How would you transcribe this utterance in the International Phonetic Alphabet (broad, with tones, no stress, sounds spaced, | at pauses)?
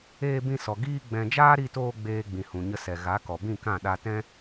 eː˧ b ĩ˧ s ɔ˨ ɡ iː˧ ɡ͡b ɛ̃˨ d͡ʒ aː˦ ɾ i˧ t oː˧ ɡ͡b eː˨ ɡ͡b ĩ˨ h ũ˨ ɲ ə˧ s ɛ˨ ɣ a˨˦ k ɔ˨ b ĩ˦˨ k ã˦˨ ɗ a˧ t ɛ̃˦